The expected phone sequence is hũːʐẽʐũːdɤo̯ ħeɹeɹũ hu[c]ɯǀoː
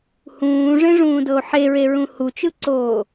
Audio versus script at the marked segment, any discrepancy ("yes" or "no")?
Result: yes